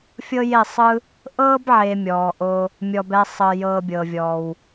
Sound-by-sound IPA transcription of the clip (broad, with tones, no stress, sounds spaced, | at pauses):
fʲ ɤ˦ j e˦˨ sˤ ɯ˦ | ʔ ɤː˦ b ʕ e˨ mʲ ɔː˨ ʔ o˧ | mʲ ɔ˧ b ɛ˦ sˤ ɤ˧ j ɤː˧ bʲ ɤː˨ vʲ ɔː˨ w